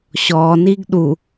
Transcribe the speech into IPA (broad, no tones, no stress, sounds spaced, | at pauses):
ɕ ɔː n i ɡ ɗ u